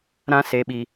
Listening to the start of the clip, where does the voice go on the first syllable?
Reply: high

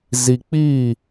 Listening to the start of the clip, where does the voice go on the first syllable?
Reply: low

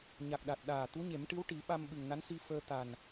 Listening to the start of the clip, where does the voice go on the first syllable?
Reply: low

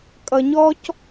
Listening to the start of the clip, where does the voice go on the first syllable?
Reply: low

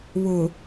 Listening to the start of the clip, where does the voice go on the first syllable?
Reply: low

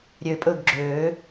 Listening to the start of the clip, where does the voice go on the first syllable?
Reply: low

